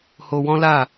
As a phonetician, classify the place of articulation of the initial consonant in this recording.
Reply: glottal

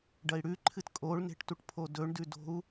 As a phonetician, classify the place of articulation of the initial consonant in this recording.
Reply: retroflex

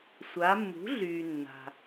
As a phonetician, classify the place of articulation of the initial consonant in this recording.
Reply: alveolar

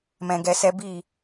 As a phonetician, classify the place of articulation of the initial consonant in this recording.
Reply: labial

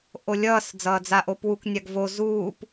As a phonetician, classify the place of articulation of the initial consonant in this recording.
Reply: glottal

